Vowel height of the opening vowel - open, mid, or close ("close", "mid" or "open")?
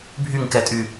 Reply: close